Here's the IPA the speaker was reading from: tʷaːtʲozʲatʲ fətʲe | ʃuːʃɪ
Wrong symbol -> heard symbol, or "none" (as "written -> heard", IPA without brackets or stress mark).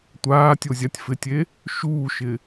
ə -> ɪ